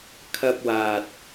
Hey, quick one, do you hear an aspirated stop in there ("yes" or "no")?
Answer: yes